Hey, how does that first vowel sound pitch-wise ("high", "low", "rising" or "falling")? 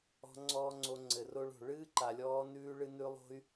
high